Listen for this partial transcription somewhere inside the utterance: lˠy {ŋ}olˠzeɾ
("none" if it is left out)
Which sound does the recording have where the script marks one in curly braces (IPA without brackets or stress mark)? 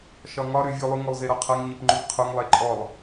ŋ